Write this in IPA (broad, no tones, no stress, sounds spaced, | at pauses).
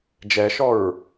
d͡ʒ ɛ ʃ ɔ ɹ